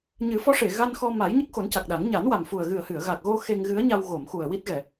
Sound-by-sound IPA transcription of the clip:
ɲ ɨ˨˩˦ f ɔ˧˥ ʂ e˨˩˨ ɣ a˧ n x ɔ˧ m a˨˩˦ j ɲ ə˦˥ k̚ x o˨˩˦ n c a˨˩ k̚ ɗ a˨˩˦ ŋ ɲ a˨˩˦ n w a˨˩ m f u˨˩ ə̯ ɣ ɨ˨˩ ə̯ h ɨ˨˩˨ ə̯ ɣ a˨˩ k̚ ɣ o˧ x e˧ ŋ ɣ ɨ˧˥ ə̯ ɲ a˧ w ɣ o˨˩˨ m x u˨˩ ə̯ w i˦˥ t̚ ɣ ɛ˨˩˨

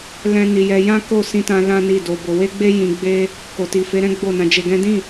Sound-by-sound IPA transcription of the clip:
l ɛ̃˦ n i˧ j ɛ˦ j ã˦ k o˦˨ s ĩ˧ t ã˧ l ã˦ n i˦˨ d o˧ b o˧ w e˦ ɡ͡b e˦ j ĩ˧ ɡ͡b e˦ | k o˨ t i˨ f e˨˦ ɾ ɛ̃˦ ɡ͡b o˦˨ n ã˧ d͡ʒ e˧ ɡ ɛ̃˦ d ĩ˦˨

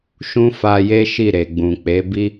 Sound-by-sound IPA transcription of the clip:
ʃ ũ˦ f a˧ j e˦ ʃ i˦˨ ɾ e˨ ɡ͡b ũ˨ k͡p e˨˦ b i˦

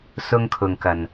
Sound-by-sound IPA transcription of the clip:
s ʊ˧ ŋ kʰ ʊ˨ ŋ k ɐ˨ n

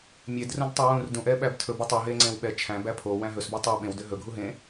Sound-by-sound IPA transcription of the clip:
mʲ e d r ũ d tˤ o w ũ r d ũ ʔ ɛ ɓ æ b tʰ ɵ b u tˤ u ɦ e ŋ͡ǀ ẽ w ɓ ɛ t͡ʃʰ æ̃ b æ pʰ o w æ̃ ɦ ɵ s b o tˤ u ɓ ẽ w d ø ɦ ɵ ɡʱ u ɦ ẽ

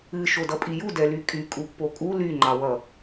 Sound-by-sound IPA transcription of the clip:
ɨ ʃ o d ʌ pʼ i j u d ɛ l y kʼ y kʼ u pː o kʼ u l y ŋ͡ǃ ɑ w ʌ

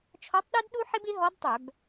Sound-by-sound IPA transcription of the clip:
t͡ʃʰ ɔ˧˥ tˤ ɗ œ˥ d ɗ u˥ ħ ɪ˥ b ɪ˧˥ ɦ ɔ˧˥ d tˤ œ˧˩˧ b

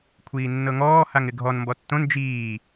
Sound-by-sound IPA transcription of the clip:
kʷʰ iː nː ɤ ŋ ɔː h a ŋ ɪ ɡʱ ɔ n m b ɔ tː õ n d͡ʒ iː

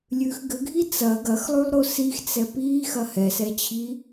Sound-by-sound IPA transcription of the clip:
lʲ ʉ x ɡ ɘ ɡʱ i t͡s ɐ ɡ ɐ x lˠ ʉ lˠ ɾ o s i x t͡s ɛ p iː x ɐ h ɛ s ɛ t͡ɕʰ i

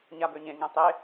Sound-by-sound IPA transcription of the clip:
ɲ a b ø ɲ ẽ ŋ ẽ tˤ e

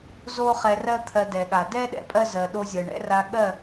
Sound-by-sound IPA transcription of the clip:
z o˦ χ ɛ˧ r ɜ˦ t̪ʰ ɜ˧ d ɛ˨ ɠ a˨ d ɛ˦ ɗ ɛ̰˨ pʼ ɜ˦ z ɜ˨ ɗ o˧ zʲ ɜ˨ ɳ ɛ̰˦ r a˧ ɠ ɜ˦˨

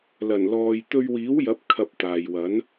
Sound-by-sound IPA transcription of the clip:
l ɐ˨˩ n l ɔː˨ j t̪ ɵ˧ ɥ w iː˨˥ w j ɐ˨˥ p̚ kʰ ɐ˧ p̚ t̪ aː˨ j w ɐ˨˥ n

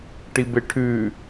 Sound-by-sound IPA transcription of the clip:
ʈ i b e ʈʰ ʉ

